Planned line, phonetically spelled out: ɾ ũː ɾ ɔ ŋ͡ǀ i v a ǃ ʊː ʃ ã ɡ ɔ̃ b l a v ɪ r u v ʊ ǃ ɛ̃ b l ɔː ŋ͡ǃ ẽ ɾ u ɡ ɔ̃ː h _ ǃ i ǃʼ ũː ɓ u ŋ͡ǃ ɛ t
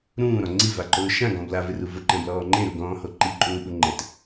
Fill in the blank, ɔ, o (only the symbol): o